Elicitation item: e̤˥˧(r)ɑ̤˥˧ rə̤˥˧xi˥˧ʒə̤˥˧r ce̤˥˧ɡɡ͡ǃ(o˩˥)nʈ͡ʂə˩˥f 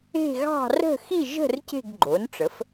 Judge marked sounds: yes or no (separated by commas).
no, yes